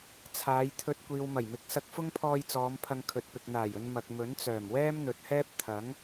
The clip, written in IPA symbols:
t͡sʰ aː˨˧ j t̪ʰ ɵ˧ t̚ kʷ iː˨ w m ɐ˨˩ j m ɪ˨˥ k̚ s ɐ˧ k̚ f ʊ˥ ŋ pʰ ɔː˧ j t͡s ɔː˨˧ m pʰ ɐ˧ ŋ kʰ ɵ˨ t̚ p ɪ˨ k̚ n̪ aː˨˩ j ɵ˨ n m ɐ˨ k̚ m ɵ˨˥ n t͡s œː˨˩ m w ɛː˥ m n̪ ɵ˨ t̚ h ɛː˥ p̚ t̪ʰ ɐ˨˥ ŋ

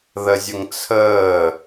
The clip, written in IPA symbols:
ð ə zʲ ə ŋ t͡sʰ əː

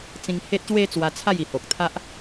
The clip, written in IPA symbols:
t͡s ĩ˧ ŋ h e˦ t̚ ɕ w e˦ t͡s w a˧ t͡sʰ a˥˧ j i˨˩ h o˨ k̚ t̪ʰ a˦ ʔ

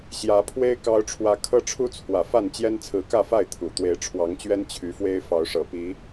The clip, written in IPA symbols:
ɕ j ä˨˦ pʰ w e˦ ɪ̯ k ɑ˨˦ ʊ̯ ʈ͡ʂʰ w ä˨˦ kʰ ɤ˦ ʈ͡ʂʰ u˦ t͡sʰ w ä˨˩ f a˥˨ n t͡ɕ j ɛ˦ n t͡sʰ ɹ̩˨˦ k ä˥˨ f a˥˨ ɪ̯ t̪ʰ u˨˩ t̪ w e˨˦ ɪ̯ ʈ͡ʂʰ w ɑ˨˦ ŋ t͡ɕ ɥ ɛ˦ n t͡ɕʰ y˨˦ f w e˦ ɪ̯ f ɑ˨˦ ʊ̯ ʂ ɤ˨˩ p i˨˦

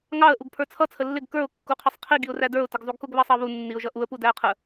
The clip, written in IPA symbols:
ŋ ɑ ə̯ ʔ u ɡ pʰ ə˞ t͡sʰ ʌ t͡sʰ ə lː ɪ ɡ k ə˞ ʊ̯ kː u qʰ ʌ sˤ qʰ i ɡ i ʊ̯ r æ d ə˞ ʊ̯ t ə ɡ zˤ u ɡ k ʊ ɡ β ɑ sˤ ɑ β u nː i ʊ̯ ʒ ʌ ʔ u ə̯ p u d æ ə̯ qʰ ə

